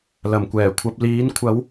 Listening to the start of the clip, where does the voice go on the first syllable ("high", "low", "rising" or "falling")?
low